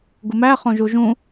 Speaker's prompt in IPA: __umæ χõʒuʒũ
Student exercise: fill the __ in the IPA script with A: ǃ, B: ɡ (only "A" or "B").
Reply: B